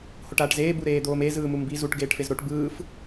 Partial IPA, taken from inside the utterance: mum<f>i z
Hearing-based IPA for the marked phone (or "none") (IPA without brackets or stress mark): b